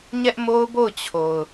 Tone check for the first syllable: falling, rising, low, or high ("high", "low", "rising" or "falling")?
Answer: high